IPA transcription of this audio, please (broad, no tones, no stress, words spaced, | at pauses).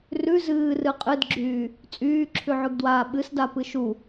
rʉ zɨː rɨqʼɨdɡ͡ǁyː | t͡sʼyːǁʰʉʕʉɡdwaː ɓɨsda pɨʃu